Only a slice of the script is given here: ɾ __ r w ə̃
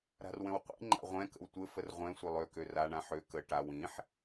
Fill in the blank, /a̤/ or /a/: a̤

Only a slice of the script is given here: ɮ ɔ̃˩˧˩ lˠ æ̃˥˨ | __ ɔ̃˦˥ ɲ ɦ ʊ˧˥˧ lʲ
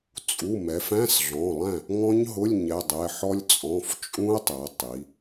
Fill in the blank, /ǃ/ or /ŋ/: ŋ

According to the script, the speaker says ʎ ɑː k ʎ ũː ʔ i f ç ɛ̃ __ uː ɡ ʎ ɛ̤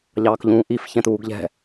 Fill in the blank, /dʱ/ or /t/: t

